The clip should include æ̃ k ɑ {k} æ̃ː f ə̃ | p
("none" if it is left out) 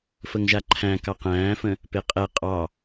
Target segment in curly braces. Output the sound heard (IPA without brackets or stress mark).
q